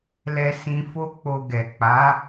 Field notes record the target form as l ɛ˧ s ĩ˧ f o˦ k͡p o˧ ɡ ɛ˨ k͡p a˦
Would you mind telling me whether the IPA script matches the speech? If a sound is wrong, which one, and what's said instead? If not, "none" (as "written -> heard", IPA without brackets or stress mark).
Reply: a˦ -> a˨˦